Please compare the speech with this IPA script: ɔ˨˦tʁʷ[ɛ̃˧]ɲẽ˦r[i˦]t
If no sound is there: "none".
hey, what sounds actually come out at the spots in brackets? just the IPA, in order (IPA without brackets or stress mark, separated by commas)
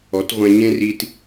ɛ̃˧, i˦